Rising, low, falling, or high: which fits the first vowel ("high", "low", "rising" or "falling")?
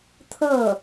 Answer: falling